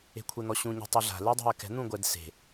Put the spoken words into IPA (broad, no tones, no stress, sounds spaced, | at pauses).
e̤ kʷʰ e n̪ ɔ ɕ ũ ɲ ɛ̤ tˤ i ɮ a̤ l e dˤ ṳ ɐ̯ k ɛ̤ n̪ ũ ɡʷ ɛ d s e̤